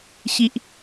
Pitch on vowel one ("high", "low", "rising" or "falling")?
low